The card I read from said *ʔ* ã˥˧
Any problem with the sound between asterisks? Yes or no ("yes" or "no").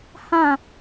yes